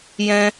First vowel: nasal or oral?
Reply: nasal